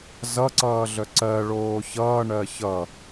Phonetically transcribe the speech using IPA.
z ʌ ǀ ʌː ɮ œ ǀ ɜ ɭ oː ç ʌː ɳ ɜ ç ʌ

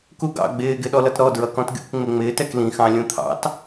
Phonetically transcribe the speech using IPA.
k u ɡ ɑ̰ ɡ͡b ɪː ɡ ɪ ɗ ɔ l ʌ t ɾ ɔ d ɹ ʌ k ɔ̃ t ɡʲ ṵ k ŋ͡m ɪ ŋ͡m ɪː t ɛ k l ĩ x ɑ̃ lʲ ũ t̪ʰ ɑ̰ t

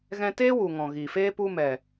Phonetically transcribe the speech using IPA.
ɣ ɛ̃˧ t eː˦ w u˨ ŋ ɔ̃˨ ɣ iː˨ f eː˦ p u˧ m ɛ˨

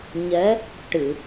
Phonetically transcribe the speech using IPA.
ɲ ɛ˧˥ | ʈ ɨ˨˩˨

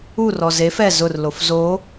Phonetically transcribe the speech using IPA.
u r ɔ z e f ɛ z ʊ r l o f z o

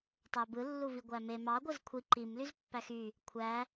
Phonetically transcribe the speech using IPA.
tˤ æ b ɯ lː u v i ɡʷ æ m e m ɑ ɡʷ ɯ z kʷʰ i ǃ i m l y z pː æ x y | kʷʰ æ

